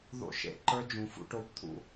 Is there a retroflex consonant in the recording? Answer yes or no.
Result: yes